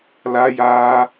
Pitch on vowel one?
high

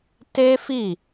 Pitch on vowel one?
high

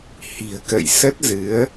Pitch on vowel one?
low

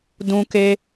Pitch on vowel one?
high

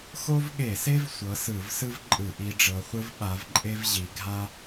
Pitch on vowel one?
high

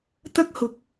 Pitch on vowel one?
high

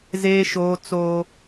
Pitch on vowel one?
high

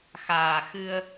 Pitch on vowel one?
low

